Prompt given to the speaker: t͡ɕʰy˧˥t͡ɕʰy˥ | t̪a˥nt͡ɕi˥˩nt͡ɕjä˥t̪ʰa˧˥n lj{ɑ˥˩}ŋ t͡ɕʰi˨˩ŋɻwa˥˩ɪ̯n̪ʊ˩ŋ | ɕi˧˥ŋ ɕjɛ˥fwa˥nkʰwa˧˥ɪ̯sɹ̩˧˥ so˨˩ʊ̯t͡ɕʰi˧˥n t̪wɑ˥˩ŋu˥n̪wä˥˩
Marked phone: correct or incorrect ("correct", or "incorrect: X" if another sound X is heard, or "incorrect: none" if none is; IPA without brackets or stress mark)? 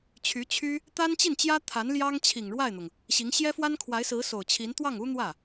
incorrect: ɑ˥